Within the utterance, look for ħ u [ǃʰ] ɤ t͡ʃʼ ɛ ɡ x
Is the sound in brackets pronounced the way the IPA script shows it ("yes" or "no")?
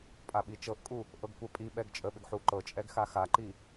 no